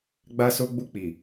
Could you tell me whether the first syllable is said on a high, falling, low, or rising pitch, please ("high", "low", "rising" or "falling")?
high